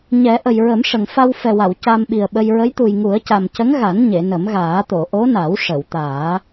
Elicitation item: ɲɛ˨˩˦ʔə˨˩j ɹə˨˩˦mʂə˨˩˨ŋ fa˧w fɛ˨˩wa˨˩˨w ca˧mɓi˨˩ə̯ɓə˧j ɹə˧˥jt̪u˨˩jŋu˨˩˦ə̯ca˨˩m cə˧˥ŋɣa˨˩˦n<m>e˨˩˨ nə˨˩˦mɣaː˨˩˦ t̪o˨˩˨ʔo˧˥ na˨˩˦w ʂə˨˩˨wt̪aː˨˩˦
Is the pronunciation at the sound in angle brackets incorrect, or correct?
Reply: incorrect